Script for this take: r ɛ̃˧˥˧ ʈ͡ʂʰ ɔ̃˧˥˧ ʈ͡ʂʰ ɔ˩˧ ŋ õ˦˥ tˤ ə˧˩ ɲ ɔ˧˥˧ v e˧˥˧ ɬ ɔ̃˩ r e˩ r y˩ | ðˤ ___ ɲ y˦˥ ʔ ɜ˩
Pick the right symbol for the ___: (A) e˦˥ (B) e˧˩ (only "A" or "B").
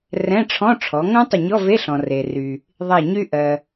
B